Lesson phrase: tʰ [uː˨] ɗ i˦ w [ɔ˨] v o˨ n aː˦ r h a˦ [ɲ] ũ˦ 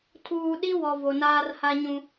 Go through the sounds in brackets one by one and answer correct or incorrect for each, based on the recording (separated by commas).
correct, correct, correct